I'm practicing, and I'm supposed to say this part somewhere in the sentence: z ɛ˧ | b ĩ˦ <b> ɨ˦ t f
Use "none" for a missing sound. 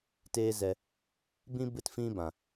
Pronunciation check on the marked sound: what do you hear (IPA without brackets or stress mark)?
b